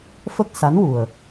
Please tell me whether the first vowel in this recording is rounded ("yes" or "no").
no